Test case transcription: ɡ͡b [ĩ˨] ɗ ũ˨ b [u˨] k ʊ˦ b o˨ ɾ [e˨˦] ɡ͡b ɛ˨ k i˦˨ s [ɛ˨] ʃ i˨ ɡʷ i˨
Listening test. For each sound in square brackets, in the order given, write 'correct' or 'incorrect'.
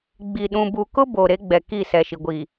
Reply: incorrect: i˨, correct, correct, correct

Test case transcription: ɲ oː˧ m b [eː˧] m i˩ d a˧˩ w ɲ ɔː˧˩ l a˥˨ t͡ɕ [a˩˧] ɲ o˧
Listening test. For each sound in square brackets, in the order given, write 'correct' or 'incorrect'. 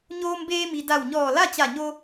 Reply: correct, incorrect: a˧˩

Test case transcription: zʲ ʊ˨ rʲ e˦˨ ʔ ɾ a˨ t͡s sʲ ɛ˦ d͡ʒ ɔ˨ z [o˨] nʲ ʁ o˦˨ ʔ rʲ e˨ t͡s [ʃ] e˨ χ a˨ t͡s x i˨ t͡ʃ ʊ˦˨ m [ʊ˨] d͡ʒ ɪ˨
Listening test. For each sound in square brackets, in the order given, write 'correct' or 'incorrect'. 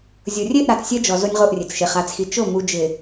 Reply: incorrect: o˦, correct, incorrect: u˨

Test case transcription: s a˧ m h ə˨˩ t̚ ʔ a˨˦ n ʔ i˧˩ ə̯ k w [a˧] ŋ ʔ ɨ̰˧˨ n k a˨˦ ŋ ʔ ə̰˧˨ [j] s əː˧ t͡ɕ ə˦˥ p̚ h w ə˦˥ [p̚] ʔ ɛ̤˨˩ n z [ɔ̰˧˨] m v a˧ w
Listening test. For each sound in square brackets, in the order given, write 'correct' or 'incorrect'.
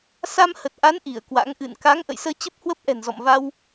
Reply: incorrect: a̰˧˥, correct, correct, correct

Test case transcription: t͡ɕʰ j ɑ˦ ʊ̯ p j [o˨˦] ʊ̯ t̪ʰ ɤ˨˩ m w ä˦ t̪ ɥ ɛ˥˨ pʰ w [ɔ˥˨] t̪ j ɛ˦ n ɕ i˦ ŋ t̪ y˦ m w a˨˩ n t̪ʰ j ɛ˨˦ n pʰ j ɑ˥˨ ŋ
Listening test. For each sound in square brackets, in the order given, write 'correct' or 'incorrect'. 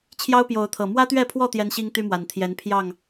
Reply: correct, correct

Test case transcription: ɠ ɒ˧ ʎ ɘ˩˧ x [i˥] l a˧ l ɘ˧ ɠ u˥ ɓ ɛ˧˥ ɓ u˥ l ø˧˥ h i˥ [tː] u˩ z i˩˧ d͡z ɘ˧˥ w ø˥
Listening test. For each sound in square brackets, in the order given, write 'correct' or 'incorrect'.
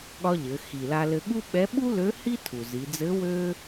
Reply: incorrect: i˩, incorrect: tʰ

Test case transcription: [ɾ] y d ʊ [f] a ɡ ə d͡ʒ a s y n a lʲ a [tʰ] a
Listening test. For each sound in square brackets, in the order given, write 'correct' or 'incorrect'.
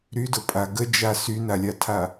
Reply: correct, incorrect: pʼ, correct

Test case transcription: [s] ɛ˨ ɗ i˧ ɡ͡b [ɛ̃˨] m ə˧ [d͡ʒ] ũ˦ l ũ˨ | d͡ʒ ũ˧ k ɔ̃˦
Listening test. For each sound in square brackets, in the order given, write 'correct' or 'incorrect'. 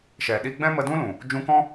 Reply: incorrect: ʃ, incorrect: ɛ̃˦, incorrect: d

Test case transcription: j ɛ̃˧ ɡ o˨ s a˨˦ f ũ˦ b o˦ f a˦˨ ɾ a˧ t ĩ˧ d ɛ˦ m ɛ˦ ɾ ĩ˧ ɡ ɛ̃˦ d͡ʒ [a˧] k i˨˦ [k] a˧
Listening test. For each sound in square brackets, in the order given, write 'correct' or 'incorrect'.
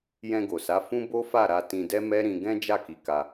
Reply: incorrect: a˦˨, correct

